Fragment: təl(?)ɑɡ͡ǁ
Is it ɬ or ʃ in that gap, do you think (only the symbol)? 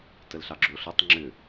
ɬ